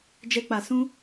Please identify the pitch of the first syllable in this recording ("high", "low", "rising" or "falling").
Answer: high